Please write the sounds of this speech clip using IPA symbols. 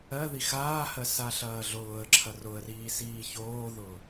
ɜ ð i x aː h ɜ s a ɬ ɐː ɮ ʊː ə̯ ǁʰ ɐ r ʊ ə̯ r iː s iː ç oː ð ʊː

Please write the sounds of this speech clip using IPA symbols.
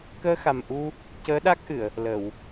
k əː˧ x a˨˩ m ʔ u˧ | c əː˧˥ ɗ a˦˥ k̚ ʔ ɨ˨˩˨ ə̯ | l ə˨˩˨ w

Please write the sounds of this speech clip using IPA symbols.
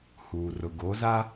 h uː˨ r ʊ˨ ɡ o˨˦ z a˦

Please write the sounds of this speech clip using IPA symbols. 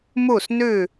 m u˧˩ s n ʉ˧˩

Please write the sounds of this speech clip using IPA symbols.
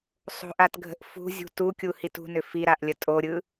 sˤ o̤ ʔ a t ɡʱ ə̤ ʔ f ṳ zʲ ṳ t u kʲ u h i t ṳ n ʏ f i ɾ a ʔ lʲ ə tʼ o ɾʲ ɯ

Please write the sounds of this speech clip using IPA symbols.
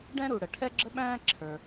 ɖ ɛ̃˥ ɾ u˩ ɽ ə˩ ʈʰ ɛ˥ ɡ͡ǁ ə˥ ɓ æ̃ː˥ ǁʰ ə˞˩

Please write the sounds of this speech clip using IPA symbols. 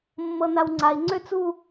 mː ɤ n a w ŋ͡ǀ a i̯ ŋ͡ǀ ø t͡s u

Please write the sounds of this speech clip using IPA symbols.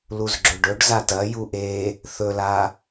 l u z ɡ͡ǁ ɵ ɖ ɵ ɖ z a t ɐ j u ʔ e | θ ɵ l a

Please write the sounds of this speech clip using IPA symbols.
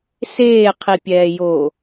s eː qʰ i pʲ ɛː j oː

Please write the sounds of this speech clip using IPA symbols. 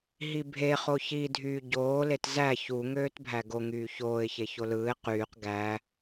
ɦ i bʱ e χ o ç i dʱ yː ɟ oː l e t z æ ç u ŋ øː t bʱ æ ɡ o ŋ yː ç oː ɪ̯ ç e ç o l ɯː ɪ̯ q yː q ɡ æ

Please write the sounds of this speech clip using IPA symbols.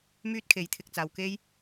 m yː˥ t̚ kʰ e˨˥ j t̪ʰ ɪ˨ k̚ t͡s aː˨ w k e˥ j

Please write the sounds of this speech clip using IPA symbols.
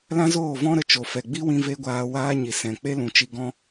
l ã˦ z oː˦˨ v ɔ̃˦ ɾ ə˧ t͡ʃ o˨ f ɛ˨ ɡ͡b i˦ w ĩ˧ v e˦ ɡʷ aː˧ w aː˦ ɲ i˨ s ɛ̃˨ k͡p e˦ l ũ˨ t͡ʃ i˧ ɡ ɔ̃˧

